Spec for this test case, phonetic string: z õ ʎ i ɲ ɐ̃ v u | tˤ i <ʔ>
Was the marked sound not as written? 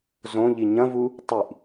no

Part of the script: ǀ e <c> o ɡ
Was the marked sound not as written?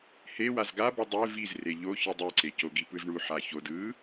no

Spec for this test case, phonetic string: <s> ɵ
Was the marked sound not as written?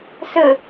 no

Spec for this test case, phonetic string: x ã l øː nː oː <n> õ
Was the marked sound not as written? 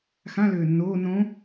no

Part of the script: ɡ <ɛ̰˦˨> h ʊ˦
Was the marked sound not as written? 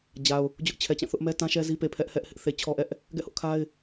no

